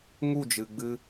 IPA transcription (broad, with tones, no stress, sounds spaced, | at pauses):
ŋ u˦˨ d͡ʒ ɨ˨ ɡ͡b ɨ˧